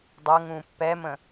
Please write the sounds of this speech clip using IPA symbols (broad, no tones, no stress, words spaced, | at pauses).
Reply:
dˤɤŋũː pːɛmə̃